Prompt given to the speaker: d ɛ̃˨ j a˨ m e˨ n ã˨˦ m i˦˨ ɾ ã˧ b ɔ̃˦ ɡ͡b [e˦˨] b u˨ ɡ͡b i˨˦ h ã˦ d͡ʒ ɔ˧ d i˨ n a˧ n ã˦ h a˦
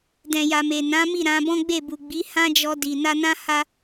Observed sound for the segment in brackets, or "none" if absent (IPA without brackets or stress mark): e˦˨